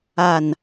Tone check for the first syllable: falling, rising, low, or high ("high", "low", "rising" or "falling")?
falling